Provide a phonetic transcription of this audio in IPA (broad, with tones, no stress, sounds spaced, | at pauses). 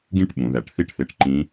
ɡ ĩ˥ ʈ ɓ ũ˩˧ ð æ˩˧ ʈ θ i˥ ʈ θ e˧ ʈ ǃ ĩ˧˥